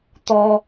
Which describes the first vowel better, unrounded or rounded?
rounded